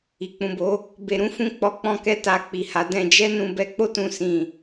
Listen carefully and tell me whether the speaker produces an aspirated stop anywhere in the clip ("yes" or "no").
no